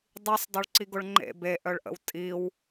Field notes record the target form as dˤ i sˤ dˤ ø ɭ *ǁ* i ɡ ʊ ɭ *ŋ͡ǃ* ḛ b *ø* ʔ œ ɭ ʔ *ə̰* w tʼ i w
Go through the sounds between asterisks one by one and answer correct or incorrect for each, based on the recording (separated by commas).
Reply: incorrect, correct, incorrect, correct